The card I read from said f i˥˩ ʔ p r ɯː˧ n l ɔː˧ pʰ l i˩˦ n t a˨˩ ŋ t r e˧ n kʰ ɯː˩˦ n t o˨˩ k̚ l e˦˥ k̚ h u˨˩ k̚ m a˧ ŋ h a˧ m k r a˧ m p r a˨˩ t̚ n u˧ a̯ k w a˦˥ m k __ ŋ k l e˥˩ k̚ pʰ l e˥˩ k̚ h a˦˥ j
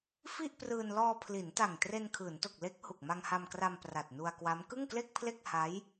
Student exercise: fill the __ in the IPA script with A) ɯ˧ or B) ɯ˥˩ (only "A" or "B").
B